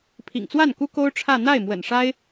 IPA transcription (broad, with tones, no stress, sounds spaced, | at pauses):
pʰ ḭ˨˩ ŋ t͡s w a˥˩ n k u˥ k o˥ ʊ̯ ʈ͡ʂʰ ä˥˧ n̪ a˥˩ ɪ̯ m w ə̰˨˩ n ʂ a˥ ɪ̯